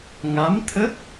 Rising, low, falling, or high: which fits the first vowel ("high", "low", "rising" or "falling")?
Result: rising